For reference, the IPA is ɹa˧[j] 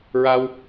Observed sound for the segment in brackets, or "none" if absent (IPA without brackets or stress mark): w